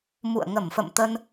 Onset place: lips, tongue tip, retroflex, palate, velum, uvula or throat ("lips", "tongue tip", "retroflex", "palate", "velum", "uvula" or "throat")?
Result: lips